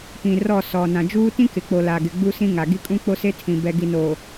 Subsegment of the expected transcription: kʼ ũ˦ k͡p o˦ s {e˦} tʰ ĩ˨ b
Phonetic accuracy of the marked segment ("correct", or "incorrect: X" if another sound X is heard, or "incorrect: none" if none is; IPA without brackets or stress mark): correct